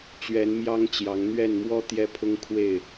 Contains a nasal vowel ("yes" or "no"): no